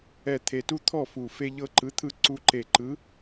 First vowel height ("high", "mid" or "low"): mid